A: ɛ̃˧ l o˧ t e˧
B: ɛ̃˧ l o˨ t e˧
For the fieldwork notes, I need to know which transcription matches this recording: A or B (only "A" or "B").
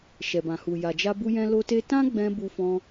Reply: A